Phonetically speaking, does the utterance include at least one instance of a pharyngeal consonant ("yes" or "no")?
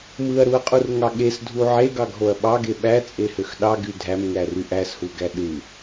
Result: yes